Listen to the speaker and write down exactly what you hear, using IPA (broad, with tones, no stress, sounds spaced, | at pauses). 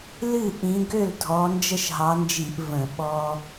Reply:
l ɨ˥˩ ʔ ĩ˨˦ ɡ ø˥˩ l dʱ ɔ˨˦ n d͡ʒ ə˦ ʃ ɦ ɑ˨˦ n d͡ʒ i˧˩˧ ʔ v ə̃˧˩˧ ɓ ɔ˦